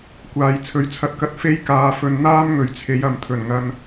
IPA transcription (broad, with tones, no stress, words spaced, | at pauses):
kʷaː˧j t͡sʰɵ˨˥ɥt͡sʰɐ˧t̚kɐ˧t̚ fe˥j kaː˧ fɵ˧n n̪aː˥mŋɵ˨˧ɥt͡sʰe˨˧jɐ˨m t̪ʰɵ˨˩nŋɐ˧n